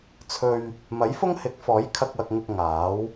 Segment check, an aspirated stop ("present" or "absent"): present